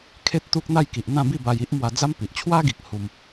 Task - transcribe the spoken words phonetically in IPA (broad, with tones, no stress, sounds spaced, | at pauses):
kʰ e˦ t̚ t̪ u˦ k̚ n̪ a˥˧ j k i˨ ʔ n̪ ã˥˧ b i˥˧ b a˧ j i˦ ʔ m w a˧ d͡z a˦ m p i˨ ʔ t͡ɕʰ w a˦ ɡ i˨ k̚ h u˦ m